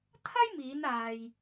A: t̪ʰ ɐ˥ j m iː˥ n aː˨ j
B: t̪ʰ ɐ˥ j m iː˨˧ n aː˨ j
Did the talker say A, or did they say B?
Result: B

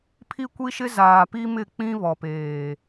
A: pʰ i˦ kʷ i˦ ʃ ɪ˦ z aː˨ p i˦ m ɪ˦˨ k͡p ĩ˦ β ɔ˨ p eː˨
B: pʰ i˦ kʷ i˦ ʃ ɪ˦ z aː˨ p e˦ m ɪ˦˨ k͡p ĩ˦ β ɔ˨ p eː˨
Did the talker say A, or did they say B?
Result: A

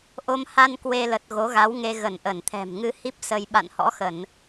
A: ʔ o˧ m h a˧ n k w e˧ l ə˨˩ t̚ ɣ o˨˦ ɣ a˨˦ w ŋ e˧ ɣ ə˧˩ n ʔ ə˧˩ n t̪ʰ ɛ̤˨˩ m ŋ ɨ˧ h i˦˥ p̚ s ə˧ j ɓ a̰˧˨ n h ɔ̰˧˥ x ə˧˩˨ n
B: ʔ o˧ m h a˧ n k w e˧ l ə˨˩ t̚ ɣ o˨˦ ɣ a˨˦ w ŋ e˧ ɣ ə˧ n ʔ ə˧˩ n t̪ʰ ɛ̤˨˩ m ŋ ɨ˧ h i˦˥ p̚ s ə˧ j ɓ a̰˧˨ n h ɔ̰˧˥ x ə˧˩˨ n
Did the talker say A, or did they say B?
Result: A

